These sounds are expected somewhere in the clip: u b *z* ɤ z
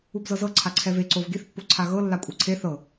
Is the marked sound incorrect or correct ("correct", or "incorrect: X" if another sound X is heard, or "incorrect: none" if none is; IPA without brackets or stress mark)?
correct